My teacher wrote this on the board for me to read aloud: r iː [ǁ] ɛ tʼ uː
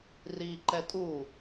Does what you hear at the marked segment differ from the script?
yes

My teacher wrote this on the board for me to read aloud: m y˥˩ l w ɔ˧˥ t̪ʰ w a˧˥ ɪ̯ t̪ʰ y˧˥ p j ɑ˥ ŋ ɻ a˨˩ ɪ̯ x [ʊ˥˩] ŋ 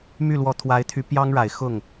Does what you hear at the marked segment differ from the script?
no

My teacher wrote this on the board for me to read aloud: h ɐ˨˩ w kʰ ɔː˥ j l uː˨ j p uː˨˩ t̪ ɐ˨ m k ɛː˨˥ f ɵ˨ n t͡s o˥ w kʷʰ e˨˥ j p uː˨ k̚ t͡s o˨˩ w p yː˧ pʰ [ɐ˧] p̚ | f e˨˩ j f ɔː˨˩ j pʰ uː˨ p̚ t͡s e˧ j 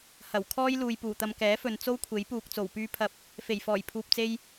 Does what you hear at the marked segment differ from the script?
no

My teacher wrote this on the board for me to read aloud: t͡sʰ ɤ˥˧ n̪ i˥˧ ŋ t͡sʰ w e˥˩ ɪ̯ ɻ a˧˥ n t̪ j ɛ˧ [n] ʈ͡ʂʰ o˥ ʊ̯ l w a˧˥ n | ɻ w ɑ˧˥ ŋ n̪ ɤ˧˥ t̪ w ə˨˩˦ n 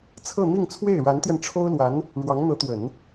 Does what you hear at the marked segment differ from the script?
no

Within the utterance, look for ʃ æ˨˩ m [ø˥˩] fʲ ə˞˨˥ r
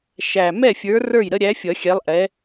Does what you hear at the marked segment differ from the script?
yes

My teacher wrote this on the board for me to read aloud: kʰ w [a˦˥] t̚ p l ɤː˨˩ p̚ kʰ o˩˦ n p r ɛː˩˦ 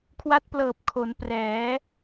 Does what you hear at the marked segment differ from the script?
no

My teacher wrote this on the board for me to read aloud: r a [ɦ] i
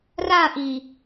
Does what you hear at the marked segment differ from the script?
yes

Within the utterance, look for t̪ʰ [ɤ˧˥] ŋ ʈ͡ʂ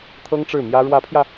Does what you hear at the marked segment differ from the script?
yes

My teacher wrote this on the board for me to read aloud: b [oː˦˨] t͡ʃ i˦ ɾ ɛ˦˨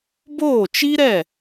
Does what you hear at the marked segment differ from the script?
no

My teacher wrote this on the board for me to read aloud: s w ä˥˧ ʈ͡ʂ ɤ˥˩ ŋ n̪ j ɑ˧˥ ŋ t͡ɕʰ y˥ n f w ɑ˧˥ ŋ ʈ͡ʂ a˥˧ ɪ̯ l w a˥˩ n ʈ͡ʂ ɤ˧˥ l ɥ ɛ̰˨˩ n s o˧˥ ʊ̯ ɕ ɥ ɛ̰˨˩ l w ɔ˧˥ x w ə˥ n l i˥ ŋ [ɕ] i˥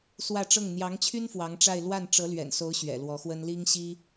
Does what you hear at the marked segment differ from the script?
no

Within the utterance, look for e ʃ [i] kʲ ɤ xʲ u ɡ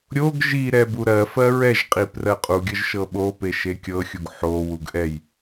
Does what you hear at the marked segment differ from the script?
yes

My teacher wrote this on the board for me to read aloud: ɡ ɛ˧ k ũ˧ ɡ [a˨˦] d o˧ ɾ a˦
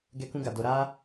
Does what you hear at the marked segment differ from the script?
yes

